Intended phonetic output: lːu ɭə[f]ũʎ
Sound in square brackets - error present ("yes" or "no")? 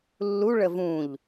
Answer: yes